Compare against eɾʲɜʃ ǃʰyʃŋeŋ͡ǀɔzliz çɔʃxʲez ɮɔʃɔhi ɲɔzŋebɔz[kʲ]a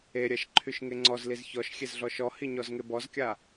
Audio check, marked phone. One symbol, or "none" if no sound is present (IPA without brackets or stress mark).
kʲ